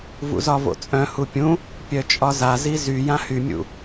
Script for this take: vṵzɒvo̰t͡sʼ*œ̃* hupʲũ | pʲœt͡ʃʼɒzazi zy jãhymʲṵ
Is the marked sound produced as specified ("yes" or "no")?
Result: yes